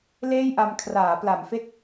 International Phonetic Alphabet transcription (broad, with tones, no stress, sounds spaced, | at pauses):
l eː˥˩ j ʔ a˧ m kʰ r aː˩˦ p l a˩˦ m f e˥˩ k̚